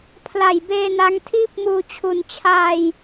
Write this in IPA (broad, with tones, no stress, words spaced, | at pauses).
pʰla˨˩jbeː˧ na˦˥ŋtʰiː˥˩p̚muː˧ t͡ɕʰu˩˦nt͡ɕʰaː˧j